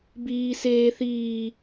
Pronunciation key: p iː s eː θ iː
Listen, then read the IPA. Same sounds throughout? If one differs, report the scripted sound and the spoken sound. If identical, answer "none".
p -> b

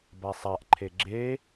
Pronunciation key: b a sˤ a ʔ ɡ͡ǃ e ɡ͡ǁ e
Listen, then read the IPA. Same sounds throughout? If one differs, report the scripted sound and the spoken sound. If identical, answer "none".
ɡ͡ǃ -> ǃʰ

